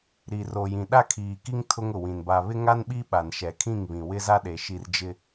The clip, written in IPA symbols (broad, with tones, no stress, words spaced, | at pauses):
ɾi˨ro˨jĩ˨ ɗa˦kʰiː˨ki˦ŋ tʰʊ˦ŋʊ˨wĩ˨n ba˨βɪ˦ŋa˦nɓi˦ ɓa˨nʃɛ˨kʰĩ˦˨ŋβĩ˨ wɪ˦za˦ɗe˨ ʃi˨r d͡ʒɪ˦